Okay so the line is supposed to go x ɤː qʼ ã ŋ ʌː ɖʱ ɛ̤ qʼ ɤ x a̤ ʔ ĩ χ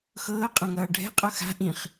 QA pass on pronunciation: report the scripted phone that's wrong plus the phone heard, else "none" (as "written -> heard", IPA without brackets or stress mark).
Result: none